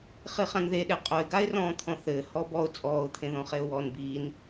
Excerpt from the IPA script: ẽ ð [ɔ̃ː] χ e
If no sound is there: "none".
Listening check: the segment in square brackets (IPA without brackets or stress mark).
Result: ɔ̃